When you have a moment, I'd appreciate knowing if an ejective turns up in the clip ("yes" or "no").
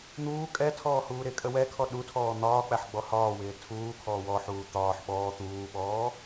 yes